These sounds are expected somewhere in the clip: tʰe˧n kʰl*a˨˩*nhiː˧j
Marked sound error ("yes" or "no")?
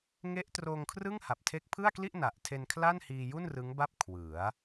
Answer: yes